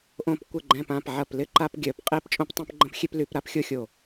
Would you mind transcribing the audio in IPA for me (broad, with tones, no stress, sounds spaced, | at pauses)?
ʔ õ˧˩ p kʷ ɪ˧˩ ɡ͡ǃ ɛ̃˧˩ p ã˧˩ p ʕ ɐ˧˩ p l ɪ˦ ǃ a˦ p ɡʲ œ˧˩˧ p qʼ e˦ p t͡ʃʼ õ˦ p tˤ ɛ̃˦ p ɡ͡ǃ ə̃˦ p xʲ e˦ p l y˧˩˧ p ɾ a˦ p xʲ o˦ xʲ o˧˩